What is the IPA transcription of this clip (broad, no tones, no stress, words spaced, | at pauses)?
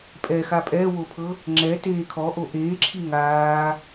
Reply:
pʼɛxa pʼɛːwopʰɤ | ŋ͡ǁɛteː kʰɔʔo ʔeːǁʰi ŋaː